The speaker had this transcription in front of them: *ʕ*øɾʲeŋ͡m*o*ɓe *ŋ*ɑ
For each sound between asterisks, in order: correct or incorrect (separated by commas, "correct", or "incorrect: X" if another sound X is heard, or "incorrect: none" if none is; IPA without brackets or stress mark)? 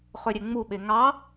incorrect: χ, incorrect: u, correct